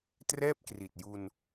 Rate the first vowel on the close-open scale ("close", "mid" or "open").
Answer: mid